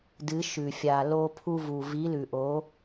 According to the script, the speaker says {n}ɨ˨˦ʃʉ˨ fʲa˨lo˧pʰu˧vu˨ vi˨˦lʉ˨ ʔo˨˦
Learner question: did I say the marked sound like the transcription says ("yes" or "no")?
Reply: no